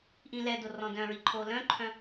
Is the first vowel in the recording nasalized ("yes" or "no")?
yes